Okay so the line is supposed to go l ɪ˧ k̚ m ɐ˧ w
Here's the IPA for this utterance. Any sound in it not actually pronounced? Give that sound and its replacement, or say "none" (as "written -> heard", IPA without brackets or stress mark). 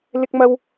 none